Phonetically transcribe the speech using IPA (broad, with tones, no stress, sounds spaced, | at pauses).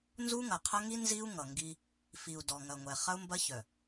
n z u˦ ŋ ɐ˨ qʰ ɐ˦ ŋ i˦ n z i˦ u̯ ŋ ʌ˨ ŋ ɡ i˦ | f i˨ u̯ d ɔ˨ ŋ ɐ˨ ŋʷ ɛ˨ χ ɐ˦ u̯ m b ɐ˦ ç œ˨